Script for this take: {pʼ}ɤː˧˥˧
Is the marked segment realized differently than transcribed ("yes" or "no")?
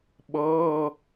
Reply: yes